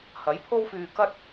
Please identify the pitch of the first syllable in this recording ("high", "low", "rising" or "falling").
rising